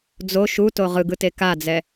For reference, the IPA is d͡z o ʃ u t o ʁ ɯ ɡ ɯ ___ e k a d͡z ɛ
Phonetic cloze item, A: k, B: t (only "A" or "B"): B